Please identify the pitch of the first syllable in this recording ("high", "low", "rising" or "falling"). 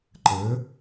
rising